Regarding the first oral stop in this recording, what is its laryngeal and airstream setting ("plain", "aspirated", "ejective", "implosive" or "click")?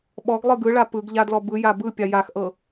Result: implosive